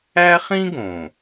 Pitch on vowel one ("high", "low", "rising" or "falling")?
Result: high